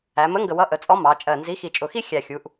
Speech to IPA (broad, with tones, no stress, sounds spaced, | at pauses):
æ˩˧ m ə˨˥ ŋ ɡ ə˨˩ w ʌ˨˥ ʔ ə˩˧ t͡sʼ ɔ˨˥ m ɑ˩˧ t͡ʃʼ ɜ˨˩ n z i˨˥ x i˨˩ t͡ʃʼ ʊ˨˩ x i˥˧ xʲ æ˨˩ xʲ u˩˧ ʔ